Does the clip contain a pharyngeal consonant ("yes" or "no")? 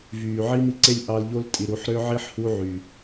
yes